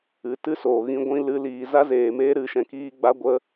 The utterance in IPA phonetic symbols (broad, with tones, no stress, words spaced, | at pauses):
ɨ˨ tɨ˦ soː˨ɣĩ˦ɡʷĩ˦ lɨ˨˦liː˨ za˦zeː˨meː˦ ɾɨ˧ʃɛ̃˧kiː˦ ɡ͡ba˦ɡʷə˦